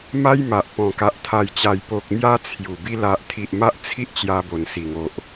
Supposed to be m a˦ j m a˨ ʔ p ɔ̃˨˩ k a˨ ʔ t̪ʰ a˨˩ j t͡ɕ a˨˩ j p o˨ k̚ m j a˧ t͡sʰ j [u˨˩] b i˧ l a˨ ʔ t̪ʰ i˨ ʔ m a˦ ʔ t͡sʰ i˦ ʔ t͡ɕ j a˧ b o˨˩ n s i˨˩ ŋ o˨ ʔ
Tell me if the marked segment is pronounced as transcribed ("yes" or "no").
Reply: yes